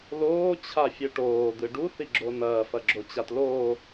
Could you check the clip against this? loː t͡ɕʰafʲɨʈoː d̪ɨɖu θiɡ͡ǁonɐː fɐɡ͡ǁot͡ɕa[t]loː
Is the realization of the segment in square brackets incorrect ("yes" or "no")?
no